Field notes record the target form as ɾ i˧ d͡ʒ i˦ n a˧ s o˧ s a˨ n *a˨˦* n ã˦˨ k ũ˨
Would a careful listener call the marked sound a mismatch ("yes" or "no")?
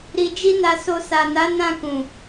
no